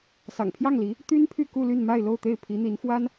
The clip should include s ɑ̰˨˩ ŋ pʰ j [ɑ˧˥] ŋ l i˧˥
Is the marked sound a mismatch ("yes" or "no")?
yes